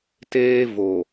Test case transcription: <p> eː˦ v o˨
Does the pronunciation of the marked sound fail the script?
yes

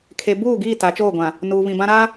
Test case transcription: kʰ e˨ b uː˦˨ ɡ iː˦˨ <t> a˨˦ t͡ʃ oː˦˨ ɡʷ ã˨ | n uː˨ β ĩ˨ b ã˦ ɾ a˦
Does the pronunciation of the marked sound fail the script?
no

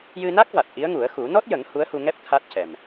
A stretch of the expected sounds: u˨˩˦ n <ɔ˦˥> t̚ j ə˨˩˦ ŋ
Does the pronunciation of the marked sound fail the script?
no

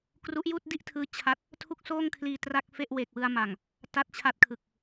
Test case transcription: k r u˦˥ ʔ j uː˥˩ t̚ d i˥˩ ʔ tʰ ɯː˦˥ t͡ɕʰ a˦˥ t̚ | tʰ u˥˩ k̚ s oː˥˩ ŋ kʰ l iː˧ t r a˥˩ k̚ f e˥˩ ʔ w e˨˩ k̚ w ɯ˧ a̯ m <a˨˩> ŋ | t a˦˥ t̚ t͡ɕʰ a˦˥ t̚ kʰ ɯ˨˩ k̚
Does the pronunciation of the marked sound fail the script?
no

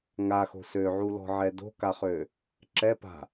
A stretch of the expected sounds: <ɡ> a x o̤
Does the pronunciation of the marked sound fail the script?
yes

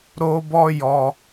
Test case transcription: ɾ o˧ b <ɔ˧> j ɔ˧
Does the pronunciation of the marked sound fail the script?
no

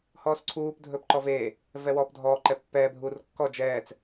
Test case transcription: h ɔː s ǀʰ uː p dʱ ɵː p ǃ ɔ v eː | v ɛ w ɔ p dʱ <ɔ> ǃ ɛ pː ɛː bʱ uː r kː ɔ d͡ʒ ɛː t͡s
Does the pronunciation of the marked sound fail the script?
yes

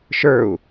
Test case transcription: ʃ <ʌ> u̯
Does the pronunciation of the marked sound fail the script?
yes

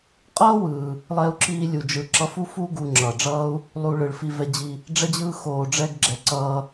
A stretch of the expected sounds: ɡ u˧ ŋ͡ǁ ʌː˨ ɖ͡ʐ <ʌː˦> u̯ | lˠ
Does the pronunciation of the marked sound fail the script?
no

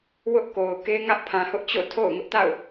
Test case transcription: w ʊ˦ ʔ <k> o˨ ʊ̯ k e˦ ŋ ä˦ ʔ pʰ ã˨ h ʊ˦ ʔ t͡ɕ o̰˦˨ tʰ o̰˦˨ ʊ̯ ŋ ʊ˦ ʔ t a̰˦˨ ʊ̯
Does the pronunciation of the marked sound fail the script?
no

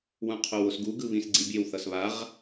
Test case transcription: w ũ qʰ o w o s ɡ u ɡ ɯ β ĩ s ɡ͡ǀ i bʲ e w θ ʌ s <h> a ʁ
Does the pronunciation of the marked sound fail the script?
yes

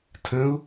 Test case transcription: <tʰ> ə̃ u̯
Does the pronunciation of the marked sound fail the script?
no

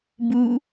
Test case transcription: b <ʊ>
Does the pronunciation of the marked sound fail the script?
yes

